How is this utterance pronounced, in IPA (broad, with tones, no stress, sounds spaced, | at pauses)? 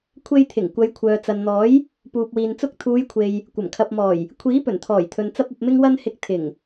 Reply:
kʷʰ e˧ j t̪ʰ ɪ˨˩ ŋ kʷ ɐ˨˧ j kʷʰ œː˨ t͡s ɐ˨ n n̪ ɔː˨˥ j | p uː˨ p̚ w iː˨ n t͡s ʊ˧ k̚ t̪ʰ uː˨˧ j kʷʰ e˨ j | kʷ ɐ˨˩ m kʰ ɐ˨ p̚ m ɔː˨˩ j | kʷʰ iː˨˥ p ɵ˨˩ n t̪ʰ ɔː˨˩ j t̪ʰ ɵ˨ n t͡s ɐ˥ p̚ ɐ˧ p̚ m ɪ˥ ŋ w ɐ˥ n h ɪ˧ k̚ t̪ʰ ɪ˨˩ ŋ